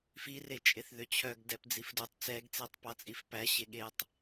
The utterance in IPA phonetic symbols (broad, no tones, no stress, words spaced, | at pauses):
fire t͡ʃʼeθðøt͡ɕʰœɡ dɛpd͡zifdutˤ t͡sɛɡt͡setˤ pɑt͡sʼifpæ ɕeɠetˤ